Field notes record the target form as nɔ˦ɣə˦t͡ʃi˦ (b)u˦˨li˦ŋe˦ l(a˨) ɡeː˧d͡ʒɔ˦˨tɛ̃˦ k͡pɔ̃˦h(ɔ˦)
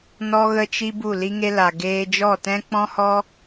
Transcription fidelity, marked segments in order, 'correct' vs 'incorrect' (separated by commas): correct, correct, correct